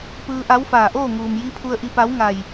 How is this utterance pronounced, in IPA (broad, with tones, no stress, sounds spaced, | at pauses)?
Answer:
p ɯː˧ ʔ a˧˥ w f aː˧˩ ʔ oː˥˨ ŋ uː˩ m j i˧˥ pʰ u˧ ə̯ ʔ i˧ p a˧˥ w ŋ a˧˩ j